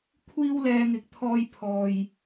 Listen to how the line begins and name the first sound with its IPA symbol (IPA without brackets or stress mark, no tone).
kʷʰ